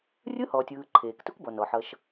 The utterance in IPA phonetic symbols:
rʲɯ˦˥hɔː˩tʲɯː˩ ǃʰeː˩ktu˦˥kbɔ˩nɔ˩ ħʌ˩ʃ

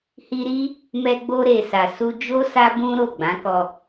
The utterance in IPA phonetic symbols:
hi˧ɾi˦ | mɛ˧ɡ͡bo˧ɾe˨ sa˨su˧d͡ʒo˦ sa˦bũ˦ɾo˦˨ɡ͡bã˨˦ kɔ˧

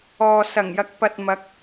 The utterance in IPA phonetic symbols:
ɔː˨ sɐ˨˩ŋjɐ˨˥k̚pɐ˨t̚ mɐ˨˥k̚

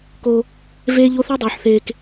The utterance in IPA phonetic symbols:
ko˦ | veː˦ʎo˦ θɒ˦dˤuː˨ħθeː˨k

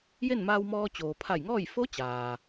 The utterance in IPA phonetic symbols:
je˥˨nmaː˧wmɔː˧ t͡ɕoː˩pʰa˧˩jŋɔː˥˨j fo˧˥ t͡ɕaː˩

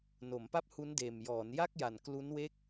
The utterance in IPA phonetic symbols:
no˩˦mpa˥˩p̚hu˦˥ndeː˨˩m jɔː˩˦nja˥˩k̚ja˨˩n klu˦˥nwe˥˩k̚

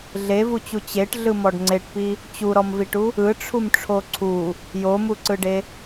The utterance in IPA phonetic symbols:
ɮevut͡ɕu t͡ɕeʈɮɯmɔɖ ŋ͡ǀeʈpi | t͡ɕuɾɔmviʈu | ɯʈ͡ʂʰumʈ͡ʂʰo ǀʰu | jomuǀɯɖe

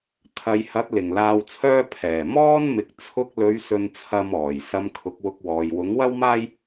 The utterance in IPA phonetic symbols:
t̪ʰɐ˨jhɐ˨˥t̚ lɪ˨˩ŋlaː˧wt͡sʰœː˥ pʰɛː˨˩ mɔː˥nmɪ˨k̚ t͡sʰʊ˧k̚lɵ˨˧ɥ sɵ˧nt͡sʰɐ˧m ɔː˨˩j sɐ˧mkʰʊ˨˥k̚wʊ˧k̚wɔː˨j wʊ˨˥ŋwɐ˥wmaː˥j

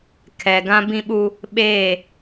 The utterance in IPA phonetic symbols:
kʰɛ˨ɡã˦bĩ˦ɓu˦ | ɓeː˦˨

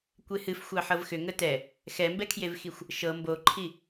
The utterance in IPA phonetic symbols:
kʷehɨf xʷɑħɤvxʏ ŋətɛ | xɛmbɛkʰjevxixʷ | ʃɤ mboǃʰi

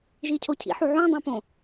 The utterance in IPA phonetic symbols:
ʒicʰocʰḭħu ʕũdˤũpõ

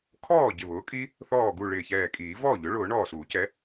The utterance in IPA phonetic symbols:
kʰɔː˥˩ ɟɪ˧˩βʊː˩˥kʼi˦˥ | θɔː˧˩ɡu˧˩ ɭɪː˧˩çɛː˧˩kʼiː˨˩˦ vɔː˥˩ʎʊ˩˥ɭʊː˨˩˦ ɳɔː˧˩suː˨˩˦cɛ˩˥

